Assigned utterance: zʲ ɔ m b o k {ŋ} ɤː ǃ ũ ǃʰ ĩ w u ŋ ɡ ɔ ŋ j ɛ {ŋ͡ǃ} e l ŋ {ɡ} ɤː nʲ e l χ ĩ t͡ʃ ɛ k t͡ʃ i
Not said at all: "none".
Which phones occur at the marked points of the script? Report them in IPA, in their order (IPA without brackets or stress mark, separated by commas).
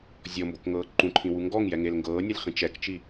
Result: ŋ, ŋ, ɡ